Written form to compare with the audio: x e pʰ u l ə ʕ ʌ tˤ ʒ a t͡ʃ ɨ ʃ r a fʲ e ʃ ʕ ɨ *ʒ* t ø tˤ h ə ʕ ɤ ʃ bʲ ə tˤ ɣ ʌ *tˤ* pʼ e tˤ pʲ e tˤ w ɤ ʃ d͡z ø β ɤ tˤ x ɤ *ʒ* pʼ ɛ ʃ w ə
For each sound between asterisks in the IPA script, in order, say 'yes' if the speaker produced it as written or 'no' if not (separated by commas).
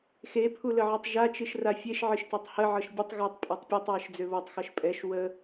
no, yes, no